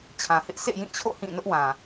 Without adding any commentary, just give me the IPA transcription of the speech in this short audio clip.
t͡ɕʰ ã˨ h ɪ˦ ʔ sʰ ḛ˦˨ j ĩ˦˨ t͡ɕʰ o̰˦˨ h ĩ˦˨ n ʊ˦ ʔ w ã˨

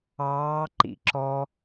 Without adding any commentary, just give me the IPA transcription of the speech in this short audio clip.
ɑː ǃ ḭ ǁ ɔ

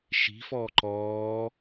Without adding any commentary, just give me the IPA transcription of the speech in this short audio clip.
ʃ i̤ f ɔː ǃ ɔː

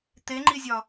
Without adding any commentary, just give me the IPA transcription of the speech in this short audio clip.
t̪ e ŋ͡ǃ i zʲ ɒ

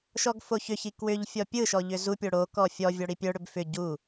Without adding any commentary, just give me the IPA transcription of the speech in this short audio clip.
ʃ ɔ ɡ f o ç ʏ ç i k w ʏ ʎ fʲ ɔ pʲ ɯ ʃ ɔ ʎ ʏ z u pʲ o ɽ o k ɔ fʲ ɔ vʲ ɔ ɽ i pʲ œ ɽ ʏ b f ʏ ɟ u

